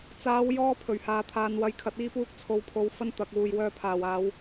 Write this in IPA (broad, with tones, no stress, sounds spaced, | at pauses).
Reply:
t͡s aː˨˧ w j ɔː˧ pʰ ɵ˨˩ ɥ h aː˨˧ t̪ʰ aː˨˧ n w ɐ˧ j kʰ ɐ˨ t̚ iː˧ p uː˧ k̚ t͡sʰ o˨˧ w pʰ o˨˧ w f ɐ˥ n t̪ ɐ˨ k̚ w uː˨ j w œː˧ pʰ aː˨˩ w aː˨˧ w